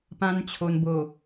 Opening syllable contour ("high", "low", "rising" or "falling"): high